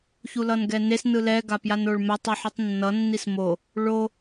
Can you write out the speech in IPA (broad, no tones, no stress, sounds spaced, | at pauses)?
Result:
ç u l ʌ n ɡ ɛ n e s n ɯ l ɛ ɡ a p j a n o ɭ m ɛ tˤ i ħ u tˤ nː ʌ nː i s m o | ɭ o